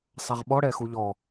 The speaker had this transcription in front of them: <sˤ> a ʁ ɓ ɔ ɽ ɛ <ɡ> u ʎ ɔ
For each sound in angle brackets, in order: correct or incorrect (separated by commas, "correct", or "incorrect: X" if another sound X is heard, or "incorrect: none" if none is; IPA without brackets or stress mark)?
correct, incorrect: x